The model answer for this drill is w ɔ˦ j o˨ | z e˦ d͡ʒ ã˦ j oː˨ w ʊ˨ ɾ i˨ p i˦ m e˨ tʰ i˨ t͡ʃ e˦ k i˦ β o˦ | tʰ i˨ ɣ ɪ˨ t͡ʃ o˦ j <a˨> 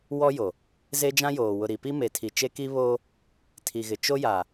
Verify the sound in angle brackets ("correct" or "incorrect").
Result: correct